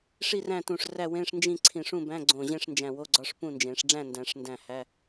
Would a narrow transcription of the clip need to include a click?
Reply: yes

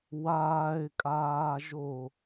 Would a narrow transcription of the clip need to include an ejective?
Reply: yes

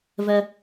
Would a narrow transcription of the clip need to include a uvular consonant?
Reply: no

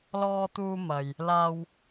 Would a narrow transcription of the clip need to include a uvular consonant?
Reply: no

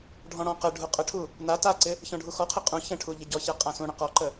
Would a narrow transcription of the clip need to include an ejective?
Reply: yes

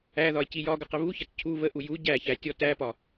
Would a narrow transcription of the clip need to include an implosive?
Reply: no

